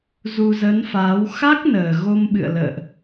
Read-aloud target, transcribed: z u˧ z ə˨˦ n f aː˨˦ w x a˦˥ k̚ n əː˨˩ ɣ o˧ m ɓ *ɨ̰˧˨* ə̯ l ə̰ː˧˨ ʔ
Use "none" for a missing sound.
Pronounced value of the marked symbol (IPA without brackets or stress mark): ɨ̰˧˨